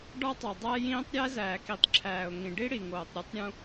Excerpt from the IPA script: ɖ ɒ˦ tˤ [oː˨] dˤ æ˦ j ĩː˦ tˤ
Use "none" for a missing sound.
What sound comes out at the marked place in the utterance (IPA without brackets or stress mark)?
o˨